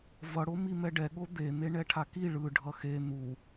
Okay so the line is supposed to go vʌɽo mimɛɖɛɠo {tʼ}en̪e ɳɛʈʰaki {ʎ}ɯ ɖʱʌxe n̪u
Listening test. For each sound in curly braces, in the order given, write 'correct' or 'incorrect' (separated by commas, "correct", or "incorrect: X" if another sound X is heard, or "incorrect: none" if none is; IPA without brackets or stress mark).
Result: incorrect: d̪, incorrect: ɭ